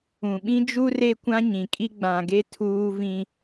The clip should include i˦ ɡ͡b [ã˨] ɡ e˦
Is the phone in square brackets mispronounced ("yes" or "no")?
no